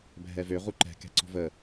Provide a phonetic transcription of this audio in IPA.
bʱɛvø ʁuǃɛ̤ kɛ̤ǀɔ̤və

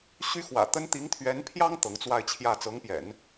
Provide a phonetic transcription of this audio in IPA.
ɕy˥xwä̰˨˩t̪ə˥n t̪i˧˥ŋt̪ʰɥɛ˧˥npʰjɑ˥ŋ t̪ɤ˧˥ŋt͡swa˥˧ɪ̯t͡ɕʰjä˥˩ t͡sɤ˧˥ŋpjɛ̰˨˩˦n

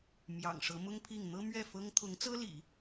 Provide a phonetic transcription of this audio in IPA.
mjɑ̰˨˩ŋʂɤ˧˥mʊ˥ŋpʰi˥˩ŋ n̪ɤ˥mɥɛ˥˩fɤ˥ŋ t̪ʰʊ˧˥ŋt͡sɤ˥lḭ˨˩˦

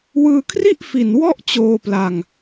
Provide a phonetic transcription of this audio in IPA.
wɯː˧kʰri˥˩ʔfi˨˩n wɔ˥˩ʔt͡ɕoː˧pla˧ŋ

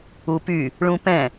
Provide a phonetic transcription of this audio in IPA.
upy | ɭũpɛ̃

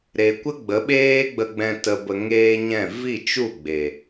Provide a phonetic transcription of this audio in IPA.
ɾe˨kʷə˦ ɡ͡bə˨˦ɓeː˦ɡ͡bə˧ɡ͡bɛ̃˧ tə˨bə˨ ŋeː˦ɲɛ̃˦˨ vi˦˨t͡ʃu˦˨ɡ͡be˨

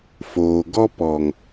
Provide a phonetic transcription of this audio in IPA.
foː˨ɡɔ˦ pɔ˨ŋ

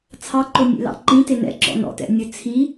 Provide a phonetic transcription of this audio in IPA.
t͡sʰɑǃonʲḛlɑ̰ ǃĩ tenɛ̰ ǁɔ̰nɔ̰tɛ̰ nʲɵt͡sʰi

